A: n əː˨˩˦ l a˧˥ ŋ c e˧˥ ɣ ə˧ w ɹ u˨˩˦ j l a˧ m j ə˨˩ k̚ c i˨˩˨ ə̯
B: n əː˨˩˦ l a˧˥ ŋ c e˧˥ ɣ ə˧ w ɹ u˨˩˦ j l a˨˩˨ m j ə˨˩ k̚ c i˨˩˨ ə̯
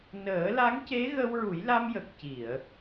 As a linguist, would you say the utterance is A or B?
A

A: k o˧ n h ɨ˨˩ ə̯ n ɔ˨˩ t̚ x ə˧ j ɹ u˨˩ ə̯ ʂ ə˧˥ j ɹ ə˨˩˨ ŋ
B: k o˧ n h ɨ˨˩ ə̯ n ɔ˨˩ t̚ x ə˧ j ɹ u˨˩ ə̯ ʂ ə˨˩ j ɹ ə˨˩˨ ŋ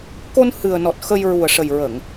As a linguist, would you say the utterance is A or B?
B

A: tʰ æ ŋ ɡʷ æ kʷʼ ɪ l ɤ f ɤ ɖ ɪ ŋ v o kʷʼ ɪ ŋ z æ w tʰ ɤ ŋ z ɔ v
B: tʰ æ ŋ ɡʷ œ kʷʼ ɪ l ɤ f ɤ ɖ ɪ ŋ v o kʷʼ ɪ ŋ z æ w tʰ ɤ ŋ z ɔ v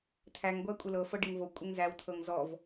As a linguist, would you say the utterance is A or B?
A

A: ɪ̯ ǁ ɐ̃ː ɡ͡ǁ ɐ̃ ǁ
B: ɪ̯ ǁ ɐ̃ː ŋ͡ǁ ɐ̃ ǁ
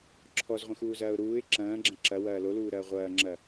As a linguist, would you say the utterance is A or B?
A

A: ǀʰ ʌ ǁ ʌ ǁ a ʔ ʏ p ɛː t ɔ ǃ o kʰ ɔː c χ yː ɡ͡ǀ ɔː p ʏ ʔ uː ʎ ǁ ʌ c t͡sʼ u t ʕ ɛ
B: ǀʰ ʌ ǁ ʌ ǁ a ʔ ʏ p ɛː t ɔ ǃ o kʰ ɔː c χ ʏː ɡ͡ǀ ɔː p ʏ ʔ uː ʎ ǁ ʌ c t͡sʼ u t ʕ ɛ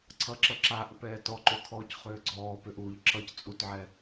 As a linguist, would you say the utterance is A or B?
B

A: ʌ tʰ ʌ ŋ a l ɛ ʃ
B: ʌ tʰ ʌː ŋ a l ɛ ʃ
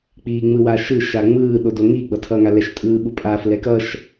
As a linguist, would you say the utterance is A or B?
B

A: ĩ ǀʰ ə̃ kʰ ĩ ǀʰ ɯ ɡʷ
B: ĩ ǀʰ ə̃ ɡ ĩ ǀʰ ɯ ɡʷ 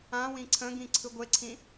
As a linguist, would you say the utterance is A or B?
B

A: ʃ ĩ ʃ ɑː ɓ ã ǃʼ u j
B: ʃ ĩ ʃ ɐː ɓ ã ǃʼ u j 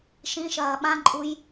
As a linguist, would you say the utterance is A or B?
B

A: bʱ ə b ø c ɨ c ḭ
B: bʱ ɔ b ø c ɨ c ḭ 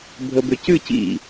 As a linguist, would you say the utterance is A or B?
A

